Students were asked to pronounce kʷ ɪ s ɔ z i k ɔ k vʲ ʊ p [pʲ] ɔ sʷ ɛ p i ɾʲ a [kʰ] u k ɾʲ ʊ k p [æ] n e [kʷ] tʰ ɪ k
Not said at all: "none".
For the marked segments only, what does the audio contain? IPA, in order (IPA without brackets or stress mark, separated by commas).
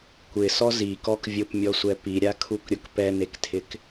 mʲ, kʰ, ɛ, k